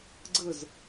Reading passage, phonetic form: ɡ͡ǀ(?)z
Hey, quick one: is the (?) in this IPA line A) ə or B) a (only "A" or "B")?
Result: A